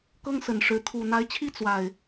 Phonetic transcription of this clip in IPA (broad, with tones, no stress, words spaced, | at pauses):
kɤ˦ŋsə˨˩nʂɻ̩˨˦ t̪ʰu˨˩ n̪a˨˦ɪ̯t͡ɕʰi˦ t͡swa˨˩ɪ̯